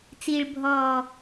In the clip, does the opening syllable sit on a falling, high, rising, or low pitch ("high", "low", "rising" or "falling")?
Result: low